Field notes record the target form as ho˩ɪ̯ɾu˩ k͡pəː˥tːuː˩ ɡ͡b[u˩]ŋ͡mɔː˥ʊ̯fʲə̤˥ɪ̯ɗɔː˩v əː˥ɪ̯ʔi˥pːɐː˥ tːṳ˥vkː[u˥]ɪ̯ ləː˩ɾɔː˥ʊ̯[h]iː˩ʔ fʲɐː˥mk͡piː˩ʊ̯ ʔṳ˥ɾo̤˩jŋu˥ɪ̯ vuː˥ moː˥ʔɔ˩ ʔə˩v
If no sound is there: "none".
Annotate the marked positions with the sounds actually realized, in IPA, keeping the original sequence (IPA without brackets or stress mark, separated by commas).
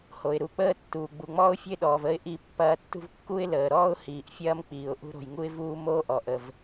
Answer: u˩, u˥, h